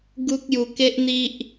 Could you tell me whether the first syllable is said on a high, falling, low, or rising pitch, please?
high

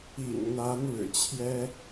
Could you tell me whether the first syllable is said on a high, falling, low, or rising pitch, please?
low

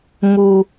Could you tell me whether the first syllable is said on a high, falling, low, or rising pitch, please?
low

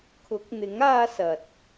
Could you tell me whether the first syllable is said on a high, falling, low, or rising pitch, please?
rising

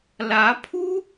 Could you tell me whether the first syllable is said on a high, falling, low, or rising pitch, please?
rising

